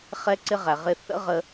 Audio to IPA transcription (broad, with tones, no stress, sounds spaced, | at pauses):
χ ɛ˧ ǀ ɪ˧ ʁ æ˩ ʁ ɪ˧ θ ə̰˥ ʁ ə˧